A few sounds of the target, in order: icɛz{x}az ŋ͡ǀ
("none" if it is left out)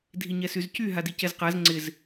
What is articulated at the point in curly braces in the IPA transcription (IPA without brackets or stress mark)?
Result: q